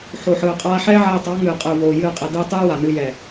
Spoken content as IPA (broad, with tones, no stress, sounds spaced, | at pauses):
ħ o˨ ħ ɯː˨ qʼ aː˧ ħ ɛː˦ ʕ ɛː˧ tˤ ɑ˨˦ ŋ ɨː˨ qʼ ɯː˨ v oː˨ j ɨː˦˨ qʼ ɛ˧ d ɨː˦ tˤ ɨː˦ w a˨ n ɨ˧ j ɛ˨